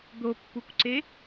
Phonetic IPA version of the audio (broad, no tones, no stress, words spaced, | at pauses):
d̪opːukʷǀe